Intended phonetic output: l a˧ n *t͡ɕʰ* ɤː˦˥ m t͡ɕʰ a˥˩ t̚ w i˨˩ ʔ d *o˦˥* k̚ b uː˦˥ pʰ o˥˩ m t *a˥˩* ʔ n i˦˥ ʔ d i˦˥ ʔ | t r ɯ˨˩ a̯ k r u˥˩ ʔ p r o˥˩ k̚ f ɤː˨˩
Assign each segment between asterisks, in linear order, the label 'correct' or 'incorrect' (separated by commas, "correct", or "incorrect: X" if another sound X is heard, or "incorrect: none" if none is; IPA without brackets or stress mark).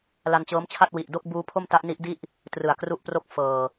incorrect: t͡ɕ, incorrect: o˥˩, incorrect: a˦˥